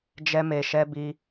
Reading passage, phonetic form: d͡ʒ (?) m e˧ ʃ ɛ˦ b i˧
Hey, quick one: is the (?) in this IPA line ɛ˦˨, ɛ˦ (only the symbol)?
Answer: ɛ˦